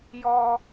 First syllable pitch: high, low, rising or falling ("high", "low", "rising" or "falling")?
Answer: high